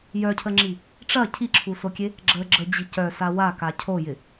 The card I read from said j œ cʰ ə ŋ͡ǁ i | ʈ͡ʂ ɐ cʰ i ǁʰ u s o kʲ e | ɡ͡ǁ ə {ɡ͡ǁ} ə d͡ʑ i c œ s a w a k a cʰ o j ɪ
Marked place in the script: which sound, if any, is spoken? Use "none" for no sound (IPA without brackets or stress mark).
ɡ͡ǁ